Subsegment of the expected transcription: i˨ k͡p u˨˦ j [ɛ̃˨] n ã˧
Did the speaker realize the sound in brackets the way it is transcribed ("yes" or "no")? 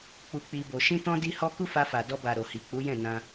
no